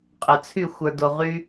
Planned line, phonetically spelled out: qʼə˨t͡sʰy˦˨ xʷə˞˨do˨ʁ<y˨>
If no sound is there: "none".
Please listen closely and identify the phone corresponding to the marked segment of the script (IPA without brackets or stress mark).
y˦